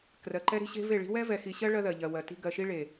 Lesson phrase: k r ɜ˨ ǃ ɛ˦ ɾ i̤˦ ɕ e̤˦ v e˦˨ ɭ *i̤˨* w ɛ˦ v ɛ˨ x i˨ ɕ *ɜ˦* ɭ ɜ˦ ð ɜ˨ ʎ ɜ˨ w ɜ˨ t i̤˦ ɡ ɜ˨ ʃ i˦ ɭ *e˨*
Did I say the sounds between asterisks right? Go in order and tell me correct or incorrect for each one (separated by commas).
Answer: incorrect, correct, correct